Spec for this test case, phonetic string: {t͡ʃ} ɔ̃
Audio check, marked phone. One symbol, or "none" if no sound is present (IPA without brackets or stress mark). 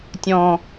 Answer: tʲ